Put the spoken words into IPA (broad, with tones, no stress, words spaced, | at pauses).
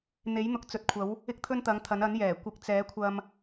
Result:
n̪e˨˥j n̪ʊ˨k̚ t͡sɵ˨˥t̚kʷʰɐ˨˥w | ɪ˥k̚t̪ʰɵ˥nt̪ɐ˨˥ŋt̪ʰɐ˨˥n ɐ˨˥njɛː˨˩ kʷɪ˨˥k̚t͡sɛː˨˥kʷʰɐ˧m